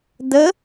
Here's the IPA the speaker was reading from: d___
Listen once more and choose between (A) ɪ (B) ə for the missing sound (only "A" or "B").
B